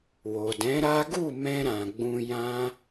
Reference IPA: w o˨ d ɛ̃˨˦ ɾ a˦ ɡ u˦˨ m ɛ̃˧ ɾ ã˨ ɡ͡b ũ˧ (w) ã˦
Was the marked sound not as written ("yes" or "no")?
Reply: yes